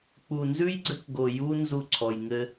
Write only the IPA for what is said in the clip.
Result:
k͡p u˨ n z ʉ˦ j ɡ͡ǀ ɘ˦ k ɡ o˨ j u˦ n z u˦˨ ǀʰ ɔ˨ j ŋ ɘ˦

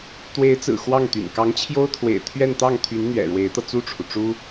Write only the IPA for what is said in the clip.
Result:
t̪ w e˧˥ ɪ̯ t͡s ɹ̩˨˩ x w ɑ˥˩ ŋ t̪ y̰˨˩ n k ɑ˧˥ ŋ t͡ɕʰ j o˥ ʊ̯ t̪ʰ w ḛ˨˩ ɪ̯ t̪ʰ ɥ ɛ˥˧ n t̪ ɑ˥˩ ŋ t̪ʰ y˧˥ n n̪ ɥ ɛ̰˨˩ ɻ w e˧˥ ɪ̯ t̪ ɤ˧ t͡s u˥˩ ʈ͡ʂʰ u˩ ʈ͡ʂ u˥

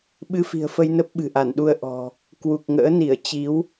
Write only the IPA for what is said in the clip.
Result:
ɓ ɨ˧ f i̤˨˩ ə̯ f ə˧ j n ə˦˥ p̚ ɓ ɨ̤˨˩ ʔ a˧˩ n ɗ u˧ ə̯ ʔ ɔ̤˨˩ | k w u˨˩ k̚ ŋ ə̰ː˧˥ n i˧˩ ə̯ t͡ɕ i˨˦ w

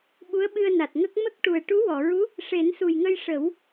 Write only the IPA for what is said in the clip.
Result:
ɓ u˧˥ ə̯ ɓ ɨ˧ ə̯ n a˨˩ t̚ ŋ ə˦˥ k̚ m ə˦˥ k̚ ʈ u˨˩ ə̯ ʈ u˧˥ w ɔ˨˩˨ ɹ u˧˥ | ʂ e˨˩˦ n s u˨˩ j ŋ ə˧ j ʂ ə˨˩˦ w

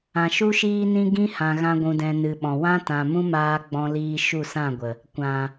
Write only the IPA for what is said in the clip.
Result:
ã˨ ʃ u˦ ʃ iː˦ n ĩ˦ ɡ ĩ˦ h ã˧ ɣ ã˦ ɡʷ ũ˧ d ɛ̃˧ n ɨ˨ ɓ ɔ̃˨ w ã˦ t ã˨ m ũ˦ m aː˧ ɡ͡b ɔ̃˦ l iː˦ ʃ u˦˨ s ã˦˨ ɡʷ ə˨ | kʷ ã˨

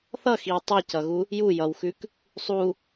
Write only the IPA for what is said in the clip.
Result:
θ ʌ x i w tˤ u c ʌ ɣ u | j u j ʌ w x ʉ k | sˤ u

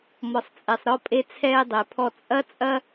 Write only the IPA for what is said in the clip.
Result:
m ɔ˩ sˤ t͡sʼ ɛ˩ sˤ ɾ ɔ˧ pʼ e˧ t͡sʰ ɛː˧ dˤ ɘ˩ pʰ ɔ˧ t͡sʼ ɐ˥ t͡sʼ ɐ˥

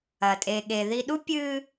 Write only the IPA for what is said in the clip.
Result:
ɐ˩ tʼ e˩ ɠ e˩ ð i˧ ɗ u˥ pʲ ɨ˧

